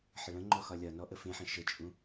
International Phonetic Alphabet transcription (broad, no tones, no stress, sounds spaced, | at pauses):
ħ ə ɭ ə̃ ŋ͡ǃ ɔ x ɒ lʲ ɒ n ɔ ʔ ə f ẽ ħ ə̃ ʃ ə t͡ʃʼ ũ